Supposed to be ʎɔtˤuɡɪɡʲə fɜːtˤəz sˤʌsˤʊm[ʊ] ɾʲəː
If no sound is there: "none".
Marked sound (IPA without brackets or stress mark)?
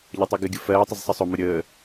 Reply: ʊ